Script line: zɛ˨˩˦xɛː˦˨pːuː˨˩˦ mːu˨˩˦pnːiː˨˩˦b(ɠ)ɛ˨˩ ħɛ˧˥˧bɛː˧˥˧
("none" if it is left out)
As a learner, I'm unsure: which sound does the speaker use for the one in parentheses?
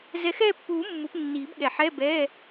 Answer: ɠ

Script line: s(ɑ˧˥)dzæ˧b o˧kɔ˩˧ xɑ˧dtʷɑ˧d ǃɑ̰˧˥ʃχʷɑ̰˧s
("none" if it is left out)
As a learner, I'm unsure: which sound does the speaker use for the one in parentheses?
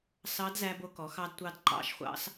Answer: ɑ˧˥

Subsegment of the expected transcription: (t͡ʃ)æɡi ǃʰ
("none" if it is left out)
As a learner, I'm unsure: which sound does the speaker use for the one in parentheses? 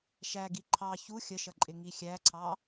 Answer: ʃ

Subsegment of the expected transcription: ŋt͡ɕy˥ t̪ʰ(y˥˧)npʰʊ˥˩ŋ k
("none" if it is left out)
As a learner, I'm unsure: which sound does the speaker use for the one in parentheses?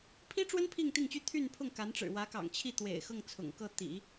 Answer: y˥˧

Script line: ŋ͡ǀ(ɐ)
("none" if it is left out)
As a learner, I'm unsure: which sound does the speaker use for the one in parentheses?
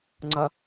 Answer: ɐ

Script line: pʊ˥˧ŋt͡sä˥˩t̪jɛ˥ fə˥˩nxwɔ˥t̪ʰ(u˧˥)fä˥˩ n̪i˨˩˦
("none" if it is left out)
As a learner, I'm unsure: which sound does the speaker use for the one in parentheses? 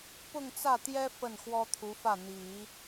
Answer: u˧˥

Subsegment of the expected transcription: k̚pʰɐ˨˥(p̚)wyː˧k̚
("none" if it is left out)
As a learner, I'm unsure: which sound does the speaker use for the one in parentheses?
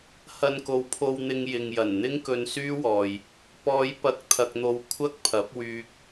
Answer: p̚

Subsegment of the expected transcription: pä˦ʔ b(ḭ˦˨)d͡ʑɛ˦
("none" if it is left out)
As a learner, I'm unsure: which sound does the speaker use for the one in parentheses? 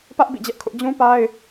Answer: ḭ˦˨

